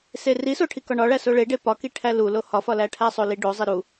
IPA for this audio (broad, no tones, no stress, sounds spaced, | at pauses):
s e r i s o ʈʰ i k ɒ ɳ ɒ ɭ æ s o ɭ e ɖ e p ɒ k i ʈʰ æ l u l o h ɒ f ɒ l æ ʈʰ æ sˤ o l i ɖ o zˤ e ɾ u